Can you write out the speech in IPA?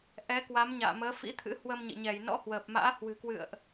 ʔ ɛ˨˦ k w a˨˦ m ɲ a̰ː˧˨ m əː˨˦ f ḭ˧˥ t̪ʰ ɨ̰˧˥ h w ə˧ m ɲ ḭ˧˨ ɲ ɛ˧˩ j n ɔ̰˧˥ h w əː˨˩ p̚ m a̰ː˧˥ h w ɨ̤˨˩ k w ɨ̰˧˨ ə̯ ʔ

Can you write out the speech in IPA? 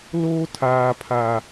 l oː˦ tʰ aː˨ pʰ a˨

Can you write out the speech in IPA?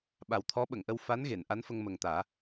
ɓ a˨˩ w t̪ʰ ɔ˧˥ ɓ ə˨˩˨ ŋ ʔ ə˧ w f a˧˥ n ɣ e˨˩˨ n ʔ a˧˥ n f ə˧ ŋ m ə˨˩ ŋ t̪ aː˨˩˦

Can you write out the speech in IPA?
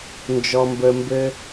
n d͡ʒ ɔ˧ m b ə˧ m b ɘ˦

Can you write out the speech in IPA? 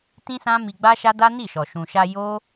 t ĩ˦ s ã˦ m i˧ ɡ͡b a˦ ʃ a˦ d a˦ n i˦˨ ʃ ɔ˨ ʃ ũ˨ ʃ a˧ j o˦

